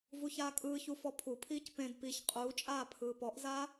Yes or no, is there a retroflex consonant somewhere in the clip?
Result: no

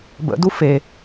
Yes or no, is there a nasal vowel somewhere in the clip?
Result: no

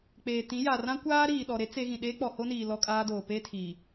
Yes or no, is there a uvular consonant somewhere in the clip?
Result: no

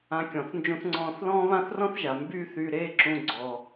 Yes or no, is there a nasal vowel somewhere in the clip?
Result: yes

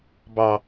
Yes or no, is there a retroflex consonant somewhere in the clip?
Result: no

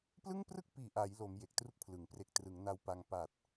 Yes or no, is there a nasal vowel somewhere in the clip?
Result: no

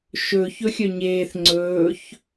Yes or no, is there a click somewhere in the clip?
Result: yes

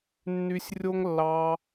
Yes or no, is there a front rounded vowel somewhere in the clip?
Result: yes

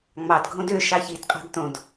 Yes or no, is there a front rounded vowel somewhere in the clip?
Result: yes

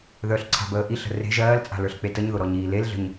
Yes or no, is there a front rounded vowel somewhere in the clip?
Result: yes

